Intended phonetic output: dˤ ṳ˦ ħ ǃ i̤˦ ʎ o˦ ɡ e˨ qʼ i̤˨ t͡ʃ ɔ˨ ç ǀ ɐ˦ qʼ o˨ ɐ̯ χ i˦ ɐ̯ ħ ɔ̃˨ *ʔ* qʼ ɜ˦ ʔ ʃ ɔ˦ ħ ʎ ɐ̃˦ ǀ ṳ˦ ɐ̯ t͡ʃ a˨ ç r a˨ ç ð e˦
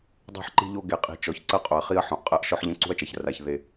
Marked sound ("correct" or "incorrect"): correct